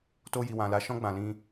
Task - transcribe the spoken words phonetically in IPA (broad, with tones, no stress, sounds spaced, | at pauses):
t o˧ j i˨ w ã˨ l a˨˦ ʃ ɔ̃˦ ɡ͡b ã˧ l ĩ˧